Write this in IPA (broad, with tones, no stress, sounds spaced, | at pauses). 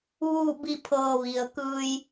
ʋ uː˥˨ b i˥˨ pʰ ɤː˧ ʋ i˩ ə̯ k ɯː˧ j